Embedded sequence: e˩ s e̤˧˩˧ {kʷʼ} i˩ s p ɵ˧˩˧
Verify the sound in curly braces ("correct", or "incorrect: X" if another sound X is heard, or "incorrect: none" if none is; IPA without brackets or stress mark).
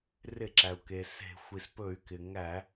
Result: incorrect: xʷ